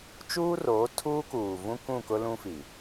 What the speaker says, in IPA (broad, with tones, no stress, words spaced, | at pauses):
t͡ʃuː˦roː˨˦ tʰuː˦kuː˨vũ˦ kũ˦˨kʊ˦ lũ˦fi˨